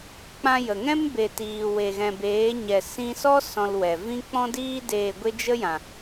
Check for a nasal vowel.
present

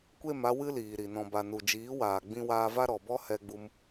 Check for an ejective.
absent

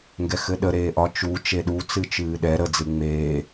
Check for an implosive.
present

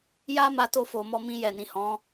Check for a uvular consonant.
absent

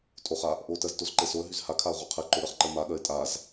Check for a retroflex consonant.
absent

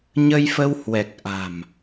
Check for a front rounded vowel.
absent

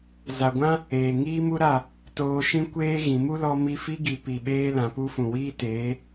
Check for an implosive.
present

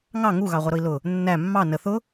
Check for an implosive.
absent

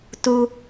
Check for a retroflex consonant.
absent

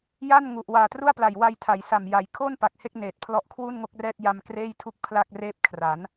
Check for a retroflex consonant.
absent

